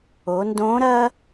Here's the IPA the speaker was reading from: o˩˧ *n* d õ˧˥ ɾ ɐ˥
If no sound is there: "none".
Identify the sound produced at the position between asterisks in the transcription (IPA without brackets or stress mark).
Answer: n